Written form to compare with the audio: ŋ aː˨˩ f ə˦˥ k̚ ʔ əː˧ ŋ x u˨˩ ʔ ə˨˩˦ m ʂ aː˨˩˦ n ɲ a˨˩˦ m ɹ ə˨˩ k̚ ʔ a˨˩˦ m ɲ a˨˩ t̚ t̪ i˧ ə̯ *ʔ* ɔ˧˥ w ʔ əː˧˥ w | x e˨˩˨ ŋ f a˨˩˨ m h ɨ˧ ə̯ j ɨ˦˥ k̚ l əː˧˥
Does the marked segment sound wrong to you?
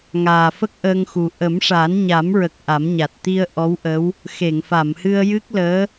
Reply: no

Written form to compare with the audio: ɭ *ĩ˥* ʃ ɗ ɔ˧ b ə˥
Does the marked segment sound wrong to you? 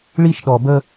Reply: yes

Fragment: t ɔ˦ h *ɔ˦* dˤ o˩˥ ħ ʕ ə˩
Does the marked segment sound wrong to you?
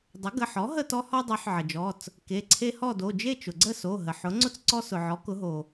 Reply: no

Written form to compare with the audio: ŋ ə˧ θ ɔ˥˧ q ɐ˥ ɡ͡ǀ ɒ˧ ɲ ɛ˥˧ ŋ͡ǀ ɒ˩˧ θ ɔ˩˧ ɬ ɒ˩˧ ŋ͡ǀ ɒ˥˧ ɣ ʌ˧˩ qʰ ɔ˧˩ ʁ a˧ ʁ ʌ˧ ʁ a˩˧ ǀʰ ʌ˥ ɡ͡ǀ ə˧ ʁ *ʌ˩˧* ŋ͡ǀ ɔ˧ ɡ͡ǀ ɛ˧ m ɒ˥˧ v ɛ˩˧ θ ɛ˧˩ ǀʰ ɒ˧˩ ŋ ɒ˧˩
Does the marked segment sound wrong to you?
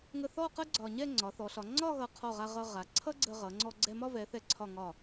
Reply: no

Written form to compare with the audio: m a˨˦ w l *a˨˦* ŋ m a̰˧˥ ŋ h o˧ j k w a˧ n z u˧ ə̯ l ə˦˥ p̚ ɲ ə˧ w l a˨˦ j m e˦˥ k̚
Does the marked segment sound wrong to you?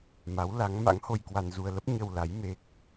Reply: no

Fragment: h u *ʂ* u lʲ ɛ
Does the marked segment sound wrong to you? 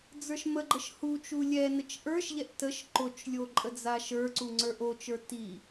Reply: yes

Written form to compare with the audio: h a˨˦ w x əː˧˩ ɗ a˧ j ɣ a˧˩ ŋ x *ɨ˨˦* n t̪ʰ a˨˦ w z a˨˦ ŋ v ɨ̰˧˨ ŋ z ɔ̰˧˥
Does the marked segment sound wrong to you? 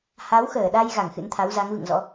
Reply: yes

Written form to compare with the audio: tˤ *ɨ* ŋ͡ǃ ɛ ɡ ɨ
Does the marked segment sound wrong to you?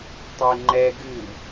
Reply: yes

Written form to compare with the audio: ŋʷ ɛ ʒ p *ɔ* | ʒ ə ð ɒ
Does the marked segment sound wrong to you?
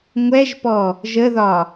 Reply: no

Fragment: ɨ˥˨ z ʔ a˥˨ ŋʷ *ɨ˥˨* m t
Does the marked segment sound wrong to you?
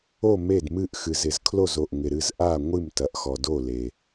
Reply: no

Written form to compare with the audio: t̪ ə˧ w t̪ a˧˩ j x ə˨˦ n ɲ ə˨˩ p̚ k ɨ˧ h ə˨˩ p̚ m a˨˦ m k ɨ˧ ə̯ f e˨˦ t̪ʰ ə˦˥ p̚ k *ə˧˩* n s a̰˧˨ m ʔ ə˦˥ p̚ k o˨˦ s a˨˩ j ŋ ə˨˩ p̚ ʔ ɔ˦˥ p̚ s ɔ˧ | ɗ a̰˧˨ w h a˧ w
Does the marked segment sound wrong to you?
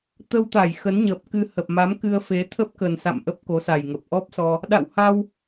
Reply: yes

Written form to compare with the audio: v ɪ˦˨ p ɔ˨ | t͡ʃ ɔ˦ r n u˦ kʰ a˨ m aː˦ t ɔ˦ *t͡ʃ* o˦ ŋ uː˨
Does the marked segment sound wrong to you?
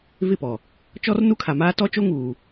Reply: no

